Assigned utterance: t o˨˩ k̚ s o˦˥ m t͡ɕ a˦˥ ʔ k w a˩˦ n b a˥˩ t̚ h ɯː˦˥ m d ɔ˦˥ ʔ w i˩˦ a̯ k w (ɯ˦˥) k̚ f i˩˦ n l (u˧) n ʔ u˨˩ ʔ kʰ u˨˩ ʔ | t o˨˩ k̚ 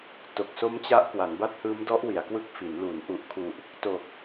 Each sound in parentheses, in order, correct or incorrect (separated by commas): correct, incorrect